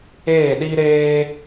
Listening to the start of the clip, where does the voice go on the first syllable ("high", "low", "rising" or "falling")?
falling